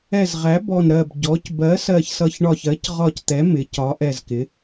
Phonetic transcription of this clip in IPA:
ɛ˧˩ z ʁ æ˩˥ b ɔ˧˩ n ɾ ɜ˧˩ b ɟ ɔ˩˥ c b ɜ˩˥ s ɜ˧˩ ç s ʌ˧˩ ç ɳ ɒ˧˩ ç ɜ˩˥ c ʁ ɒ˧˩ c t̪ ɛ˩˥ m ɪ˩˥ c ɒ˩˥ ʔ ɛ˧˩ z k ɪ˩˥

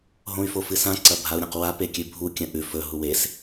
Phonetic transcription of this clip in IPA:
ɦ õ y̯ f o f ɨ s ã ǀ ɐ bʱ a u̯ ɾʲ ã q w a p e kʲ ʉ bʱ u kʲ ɐ̃ ʔ ʉ f ɵ ɦ u w e s

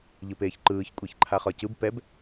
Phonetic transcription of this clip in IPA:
ʎ ɯ p eː ç ǃ ɯː ç kʷʼ e ç ǃʰ a χ ɒ c ɯ b p ɛ b

